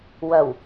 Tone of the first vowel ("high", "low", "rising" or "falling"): low